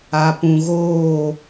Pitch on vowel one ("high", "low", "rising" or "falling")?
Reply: low